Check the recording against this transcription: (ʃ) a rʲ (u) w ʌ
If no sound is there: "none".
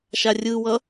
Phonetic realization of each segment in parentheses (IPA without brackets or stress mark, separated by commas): ʃ, ɯ